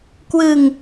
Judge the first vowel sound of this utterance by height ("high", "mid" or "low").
high